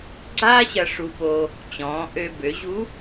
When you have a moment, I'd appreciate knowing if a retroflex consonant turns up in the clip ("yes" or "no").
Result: yes